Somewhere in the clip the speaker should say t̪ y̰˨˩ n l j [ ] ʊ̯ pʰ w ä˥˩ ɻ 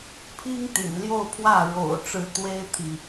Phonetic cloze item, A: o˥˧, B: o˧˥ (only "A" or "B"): A